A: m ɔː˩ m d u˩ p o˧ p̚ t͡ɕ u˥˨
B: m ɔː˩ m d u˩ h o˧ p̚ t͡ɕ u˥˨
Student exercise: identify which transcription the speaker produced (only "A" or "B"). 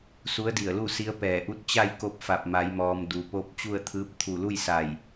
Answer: A